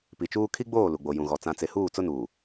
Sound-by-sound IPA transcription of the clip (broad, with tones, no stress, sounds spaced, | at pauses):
p i˨ t͡ʃ uː˦ kʰ i˦ ɡ͡b oː˦˨ l u˨ ɡ͡b o˨ j ũ˨ ɣ ɔ˨ t͡s ã˨ t͡s e˨ h uː˦˨ t͡s ʊ˦ n uː˨